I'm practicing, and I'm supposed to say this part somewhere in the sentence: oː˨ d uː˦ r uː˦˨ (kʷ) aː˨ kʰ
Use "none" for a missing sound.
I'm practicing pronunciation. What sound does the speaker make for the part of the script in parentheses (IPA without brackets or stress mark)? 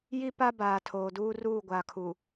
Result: ɡʷ